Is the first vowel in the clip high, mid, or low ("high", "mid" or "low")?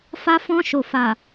low